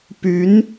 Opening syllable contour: rising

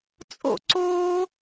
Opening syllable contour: falling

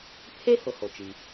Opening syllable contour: high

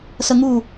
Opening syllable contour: high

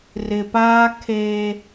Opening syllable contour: low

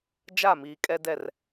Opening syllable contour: falling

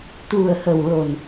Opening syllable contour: low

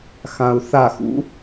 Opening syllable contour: low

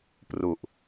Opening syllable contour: low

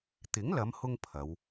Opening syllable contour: rising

